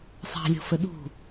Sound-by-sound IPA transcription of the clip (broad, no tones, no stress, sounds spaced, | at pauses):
sˤ ɑ̤ lʲ ɔ̤ f ə ɗ ṳ